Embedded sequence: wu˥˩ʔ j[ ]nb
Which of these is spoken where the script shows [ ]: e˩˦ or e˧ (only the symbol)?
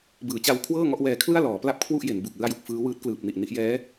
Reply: e˩˦